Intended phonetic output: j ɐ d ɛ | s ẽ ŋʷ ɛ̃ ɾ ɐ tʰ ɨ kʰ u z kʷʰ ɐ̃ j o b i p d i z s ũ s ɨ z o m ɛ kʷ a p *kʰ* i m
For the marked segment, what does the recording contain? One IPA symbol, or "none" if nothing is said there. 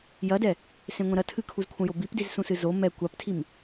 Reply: tʰ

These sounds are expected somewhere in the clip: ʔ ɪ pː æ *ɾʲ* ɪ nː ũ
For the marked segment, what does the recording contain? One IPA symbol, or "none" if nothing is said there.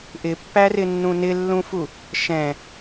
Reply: r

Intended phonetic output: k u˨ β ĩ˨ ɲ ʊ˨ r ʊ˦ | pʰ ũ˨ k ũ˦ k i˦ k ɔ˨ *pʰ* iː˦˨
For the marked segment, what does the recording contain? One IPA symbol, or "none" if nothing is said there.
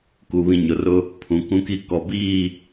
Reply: b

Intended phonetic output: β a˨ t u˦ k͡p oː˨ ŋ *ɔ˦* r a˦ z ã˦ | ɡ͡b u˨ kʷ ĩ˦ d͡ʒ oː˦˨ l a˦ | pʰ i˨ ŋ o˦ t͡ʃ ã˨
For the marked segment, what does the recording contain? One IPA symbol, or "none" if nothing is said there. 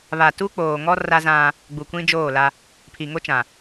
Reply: ɔ˦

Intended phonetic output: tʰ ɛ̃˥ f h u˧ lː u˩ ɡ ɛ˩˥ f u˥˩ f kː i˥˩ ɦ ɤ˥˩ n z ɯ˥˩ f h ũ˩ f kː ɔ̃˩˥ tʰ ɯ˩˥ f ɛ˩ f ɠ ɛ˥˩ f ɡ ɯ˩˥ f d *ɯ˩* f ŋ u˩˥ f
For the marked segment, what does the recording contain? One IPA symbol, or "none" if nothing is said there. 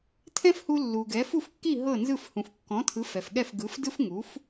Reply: ɯ˥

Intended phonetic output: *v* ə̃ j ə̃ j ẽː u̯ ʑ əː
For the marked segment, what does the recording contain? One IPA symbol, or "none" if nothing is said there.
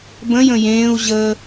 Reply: b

